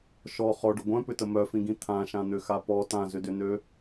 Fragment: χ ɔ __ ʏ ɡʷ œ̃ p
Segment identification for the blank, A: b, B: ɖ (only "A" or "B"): B